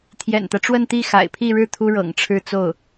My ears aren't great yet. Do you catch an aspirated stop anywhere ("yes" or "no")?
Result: yes